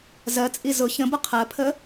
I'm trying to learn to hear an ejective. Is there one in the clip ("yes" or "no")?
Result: yes